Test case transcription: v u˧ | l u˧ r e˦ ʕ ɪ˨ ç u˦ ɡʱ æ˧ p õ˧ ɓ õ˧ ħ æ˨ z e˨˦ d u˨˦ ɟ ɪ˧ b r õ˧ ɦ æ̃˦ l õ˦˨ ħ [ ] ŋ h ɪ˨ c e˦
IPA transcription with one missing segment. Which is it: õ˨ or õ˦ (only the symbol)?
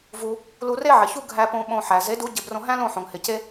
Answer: õ˨